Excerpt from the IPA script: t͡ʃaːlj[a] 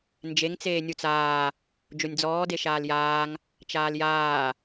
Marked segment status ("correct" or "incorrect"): incorrect